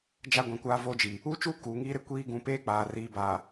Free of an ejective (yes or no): yes